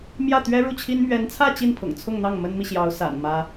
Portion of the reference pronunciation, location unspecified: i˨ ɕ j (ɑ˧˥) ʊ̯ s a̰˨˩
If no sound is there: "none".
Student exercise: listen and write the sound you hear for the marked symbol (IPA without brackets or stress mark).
ɑ˧˥